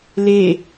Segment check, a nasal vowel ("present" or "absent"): absent